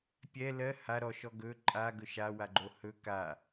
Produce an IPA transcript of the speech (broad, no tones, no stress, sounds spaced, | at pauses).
pʲ ɛ l ɜ h a ɾ ɔ ʃ ɔ ɡ ɵ ǃʼ a ɡ ɵ ʃ a w a ɡ͡ǃ o h ɵ k a